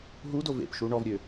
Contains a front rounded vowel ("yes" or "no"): yes